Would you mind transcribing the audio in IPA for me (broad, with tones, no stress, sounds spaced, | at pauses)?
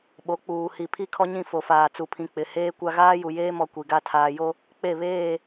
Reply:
ɓ o˨˦ k͡p uː˨ h i˨ pʰ i˦ kʰ ɔ˦ ɲ ĩ˦˨ f o˨ f aː˨ t͡s u˨ pʰ ĩ˨ k͡p ɪ˨ h eː˦ kʷ a˦ ɣ aː˦ j u˨ j eː˦ m ɔ˨ kʷ i˨ ɡ a˦ tʰ aː˨ j o˦ | k͡p e˦˨ β eː˦˨